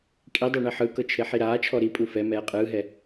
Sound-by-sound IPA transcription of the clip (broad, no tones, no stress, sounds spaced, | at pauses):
kʼ i dˤ ɛ ɳ i ħ ɯ k ɤ t͡ʃʰ e ħ i ɾ aː t͡ʃʰ ɔ ɾ i pʼ u f ɛ m ɛː qʼ ɯː ɦ ɛ